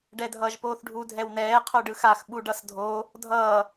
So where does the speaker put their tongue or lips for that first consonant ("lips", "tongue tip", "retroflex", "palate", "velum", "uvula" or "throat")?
retroflex